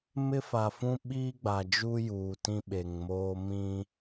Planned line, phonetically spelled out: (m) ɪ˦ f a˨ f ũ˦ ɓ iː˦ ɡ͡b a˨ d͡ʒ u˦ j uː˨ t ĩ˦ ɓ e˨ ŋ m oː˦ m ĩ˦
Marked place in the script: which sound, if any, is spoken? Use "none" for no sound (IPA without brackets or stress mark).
m